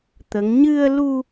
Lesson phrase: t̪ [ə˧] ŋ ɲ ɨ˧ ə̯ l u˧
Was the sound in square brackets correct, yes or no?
no